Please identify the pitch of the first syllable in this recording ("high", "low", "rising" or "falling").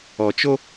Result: low